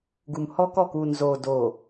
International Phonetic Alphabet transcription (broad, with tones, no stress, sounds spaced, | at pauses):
ɡ u˨ m h ɔ˦ k ɔ˦˨ k uː˨ n z oː˨ d oː˨